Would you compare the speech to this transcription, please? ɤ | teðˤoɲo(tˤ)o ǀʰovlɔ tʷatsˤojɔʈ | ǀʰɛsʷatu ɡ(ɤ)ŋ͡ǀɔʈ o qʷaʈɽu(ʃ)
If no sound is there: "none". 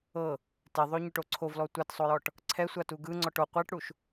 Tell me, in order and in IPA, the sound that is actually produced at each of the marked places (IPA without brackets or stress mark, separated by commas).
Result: ʈ, ɯ, ʃ